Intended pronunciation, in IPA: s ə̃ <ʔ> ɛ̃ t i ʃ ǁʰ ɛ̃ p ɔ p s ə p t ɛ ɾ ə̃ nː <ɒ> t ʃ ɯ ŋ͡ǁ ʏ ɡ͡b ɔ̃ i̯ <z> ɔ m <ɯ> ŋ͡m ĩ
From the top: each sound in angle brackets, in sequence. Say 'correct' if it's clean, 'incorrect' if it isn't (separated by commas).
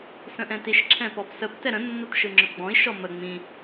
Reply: correct, correct, incorrect, incorrect